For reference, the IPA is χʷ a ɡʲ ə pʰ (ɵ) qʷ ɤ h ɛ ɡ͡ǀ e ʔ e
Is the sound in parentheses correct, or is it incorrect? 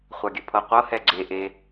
incorrect